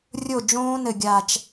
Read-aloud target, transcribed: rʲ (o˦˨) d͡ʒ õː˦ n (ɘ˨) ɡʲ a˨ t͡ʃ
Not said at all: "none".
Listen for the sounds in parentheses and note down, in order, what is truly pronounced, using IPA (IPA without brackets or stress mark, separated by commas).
o˦˨, ɘ˨